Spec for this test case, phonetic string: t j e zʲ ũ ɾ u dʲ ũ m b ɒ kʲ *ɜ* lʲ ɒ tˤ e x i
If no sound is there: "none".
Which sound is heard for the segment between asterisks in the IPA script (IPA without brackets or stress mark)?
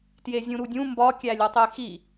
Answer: æ